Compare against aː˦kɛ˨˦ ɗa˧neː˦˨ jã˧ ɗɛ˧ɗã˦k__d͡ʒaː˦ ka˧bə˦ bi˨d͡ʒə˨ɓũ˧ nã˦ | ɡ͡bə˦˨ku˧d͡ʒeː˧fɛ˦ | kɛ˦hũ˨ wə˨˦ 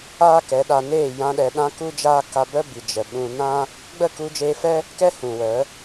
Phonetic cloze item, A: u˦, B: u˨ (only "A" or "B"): A